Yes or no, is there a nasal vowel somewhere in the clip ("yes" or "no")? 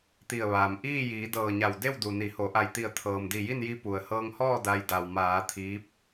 no